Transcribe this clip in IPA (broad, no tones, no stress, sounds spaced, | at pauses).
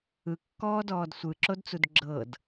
ɯ kː ɔː d ɔː d sʷ ɯ ǁ o d t͡s u d ɡ͡ǁ ɤ d